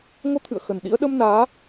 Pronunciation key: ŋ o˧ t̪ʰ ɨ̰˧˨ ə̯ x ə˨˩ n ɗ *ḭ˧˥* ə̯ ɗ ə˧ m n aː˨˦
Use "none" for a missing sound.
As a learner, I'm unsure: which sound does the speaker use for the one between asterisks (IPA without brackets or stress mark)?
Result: ḭ˧˥